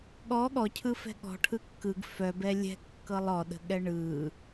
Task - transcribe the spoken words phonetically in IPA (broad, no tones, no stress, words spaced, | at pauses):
ɠɔ ɠɔcʰɯfɛ̤ ɠɔ̤ʈʰɯ kːɯɡ fœbɛ lʲɛ̤kːɤlˠ ɔɗə̤ɠɛ ɳɯ